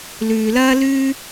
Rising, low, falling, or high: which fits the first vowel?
low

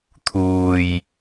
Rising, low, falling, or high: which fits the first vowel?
low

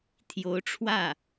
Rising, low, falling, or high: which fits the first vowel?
rising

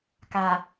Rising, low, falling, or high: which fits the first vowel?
low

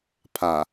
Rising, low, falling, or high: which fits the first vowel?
low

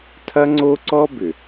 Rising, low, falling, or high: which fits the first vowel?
high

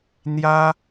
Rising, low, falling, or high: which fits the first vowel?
high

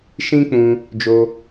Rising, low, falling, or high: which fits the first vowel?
high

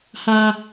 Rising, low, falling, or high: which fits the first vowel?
low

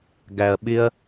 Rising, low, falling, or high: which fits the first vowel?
low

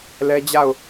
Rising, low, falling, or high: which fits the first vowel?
high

